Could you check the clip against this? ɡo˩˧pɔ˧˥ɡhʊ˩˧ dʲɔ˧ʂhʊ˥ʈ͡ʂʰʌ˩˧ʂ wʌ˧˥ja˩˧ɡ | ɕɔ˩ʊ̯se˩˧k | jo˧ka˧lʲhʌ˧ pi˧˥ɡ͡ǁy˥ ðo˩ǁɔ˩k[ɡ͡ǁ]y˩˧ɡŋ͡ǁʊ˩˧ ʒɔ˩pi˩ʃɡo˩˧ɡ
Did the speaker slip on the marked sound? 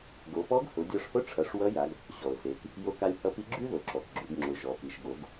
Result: no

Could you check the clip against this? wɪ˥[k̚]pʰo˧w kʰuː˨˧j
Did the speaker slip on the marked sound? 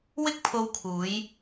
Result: no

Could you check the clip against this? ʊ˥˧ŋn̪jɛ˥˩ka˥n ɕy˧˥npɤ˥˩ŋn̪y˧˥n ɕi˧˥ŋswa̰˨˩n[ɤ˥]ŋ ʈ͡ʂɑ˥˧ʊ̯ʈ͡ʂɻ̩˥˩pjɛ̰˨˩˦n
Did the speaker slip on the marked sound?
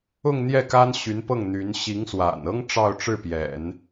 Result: no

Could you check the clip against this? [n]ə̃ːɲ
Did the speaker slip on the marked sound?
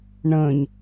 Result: yes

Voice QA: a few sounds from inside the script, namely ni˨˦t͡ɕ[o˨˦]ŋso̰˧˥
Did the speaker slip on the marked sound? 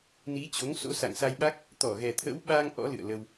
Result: no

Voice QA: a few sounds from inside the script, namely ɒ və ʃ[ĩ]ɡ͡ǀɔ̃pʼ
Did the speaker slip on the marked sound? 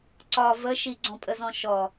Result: yes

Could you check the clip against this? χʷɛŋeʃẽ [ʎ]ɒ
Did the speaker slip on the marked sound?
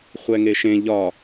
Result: no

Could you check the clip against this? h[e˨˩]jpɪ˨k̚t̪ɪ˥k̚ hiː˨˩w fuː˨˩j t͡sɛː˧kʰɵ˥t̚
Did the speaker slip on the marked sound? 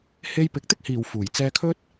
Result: yes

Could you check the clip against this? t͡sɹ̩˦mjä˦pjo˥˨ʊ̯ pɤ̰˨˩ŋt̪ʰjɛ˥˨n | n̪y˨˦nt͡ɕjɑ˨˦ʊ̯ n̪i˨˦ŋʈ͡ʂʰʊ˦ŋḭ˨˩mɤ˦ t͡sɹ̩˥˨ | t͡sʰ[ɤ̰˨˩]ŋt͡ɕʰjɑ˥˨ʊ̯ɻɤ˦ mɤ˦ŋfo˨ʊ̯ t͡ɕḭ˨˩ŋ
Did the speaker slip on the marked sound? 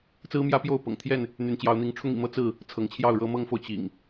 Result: yes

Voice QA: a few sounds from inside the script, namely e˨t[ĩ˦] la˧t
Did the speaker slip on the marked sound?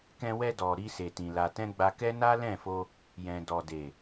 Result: yes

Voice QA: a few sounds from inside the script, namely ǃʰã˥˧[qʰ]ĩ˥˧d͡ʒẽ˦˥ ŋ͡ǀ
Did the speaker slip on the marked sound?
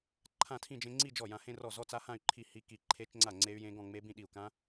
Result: yes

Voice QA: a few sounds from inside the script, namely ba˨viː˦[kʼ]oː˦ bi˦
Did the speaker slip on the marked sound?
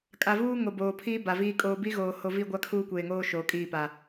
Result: no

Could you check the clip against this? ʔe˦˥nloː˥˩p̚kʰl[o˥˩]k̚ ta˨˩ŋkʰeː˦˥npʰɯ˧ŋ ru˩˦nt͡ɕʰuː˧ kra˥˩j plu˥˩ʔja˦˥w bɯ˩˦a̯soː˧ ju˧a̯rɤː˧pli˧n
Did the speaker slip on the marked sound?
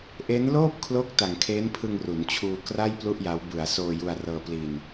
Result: yes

